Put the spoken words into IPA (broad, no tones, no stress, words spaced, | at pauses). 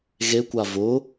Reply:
ɣekʷa vʊ